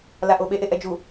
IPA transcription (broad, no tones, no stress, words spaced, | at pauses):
laʔoɓeʔ eʔɛd͡ʒu